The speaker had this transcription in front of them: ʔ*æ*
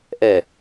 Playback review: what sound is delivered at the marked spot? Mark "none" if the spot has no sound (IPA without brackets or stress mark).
ɛ